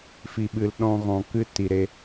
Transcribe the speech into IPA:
f i˨ ɓ ɨ˨ l ɗ ɔ̃˧ ɣ ɔ̃˨ k ɨ˦ t i˨ ɾ e˧

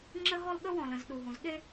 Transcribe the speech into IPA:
ŋ͡ǁ ə˥ ɦ ɔ˥ l ɠ ə˥ w ɔ̃˨ l ə̃˨ z ɗ u˨ ɦ ũ˨ z ɠ e˥

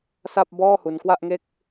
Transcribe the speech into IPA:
s a˥˩ p̚ b ɔː˥˩ h u˧ n k w a˥˩ ʔ ŋ e˥˩ k̚

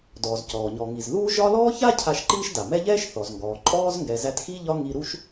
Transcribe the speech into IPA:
d ɔː˩ z c ɔː˩ ɲ ɔ˩ ŋ i˩ z ð uː˦ ʒ ɒ˦ l ɔː˥ ç a˥ cʰ a˦ ʃ ǃ iː˥ ʃ d a˩ m ɛ˦ ʎ ɛː˥ ʃ θ ɔ˩ z ŋ ɡ ɔː˩ ǃʼ ɔː˥ z ŋ ɡ ɛ˨ z æ˦ t x i˥ ʎ ɒ˦ ŋ i˦ ɾ u˥ ʃ

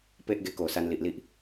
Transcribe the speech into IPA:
p e˦ ʔ ɡ e˧ k o˨˩ s a˧ n l i˨ ʔ l i˦ ʔ

